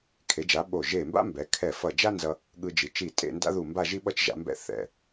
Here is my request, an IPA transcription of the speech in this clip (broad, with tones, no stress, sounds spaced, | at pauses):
kʰ e˩˧ d͡ʒ a˩˧ ɓ o˧˩ ʒ e˧˩ m b a̰˥ m b ɛ˩˧ kʰ ɛ˧˩ f ʌ˧˩ d͡ʒ a˥ n z ʌ˧ | ɠ ɯ˧ d͡ʒ i˩˧ t͡ʃ i˧˩ tʼ ḛ˥˧ n d a̰˥ ð u˧˩ m b a˥˧ ʒ i˥ ɓ ʌ˥˧ t͡ʃ ʒ a̰˩˧ m b ɛ̰˧ θ ɛ̰˧˩